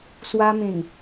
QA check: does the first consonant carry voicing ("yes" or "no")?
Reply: no